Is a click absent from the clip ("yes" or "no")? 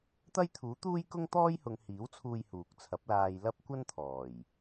yes